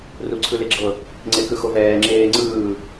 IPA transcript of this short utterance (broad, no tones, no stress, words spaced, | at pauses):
ruǀʰɯleɡ͡ǁɤ | ŋ͡ǀekɯxovɛː ŋ͡ǁeːŋ͡ǀɯː